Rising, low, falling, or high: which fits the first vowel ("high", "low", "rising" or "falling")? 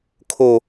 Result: falling